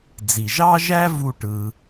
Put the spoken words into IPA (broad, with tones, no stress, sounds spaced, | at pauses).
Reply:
d͡z i˩ ʒ ɑ˥ ʒ æ˥ v u˧ ʈ ɯ˩